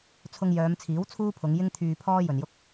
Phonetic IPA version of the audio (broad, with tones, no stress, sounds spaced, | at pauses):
t͡sʰ ʊ˧ ŋ j œː˨˧ m t͡sʰ iː˨˥ w t͡sʰ uː˥ pʰ ʊ˨˧ ŋ j ɪ˥ ŋ t̪ʰ yː˧ pʰ ɔː˥ j ɵ˨ n j ʊ˥ k̚